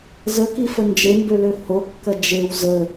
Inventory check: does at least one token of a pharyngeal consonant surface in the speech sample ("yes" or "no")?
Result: no